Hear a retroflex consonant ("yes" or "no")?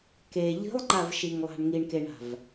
yes